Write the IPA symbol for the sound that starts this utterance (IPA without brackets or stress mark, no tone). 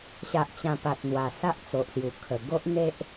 ɕ